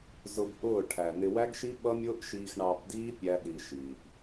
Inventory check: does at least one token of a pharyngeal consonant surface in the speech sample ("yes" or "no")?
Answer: no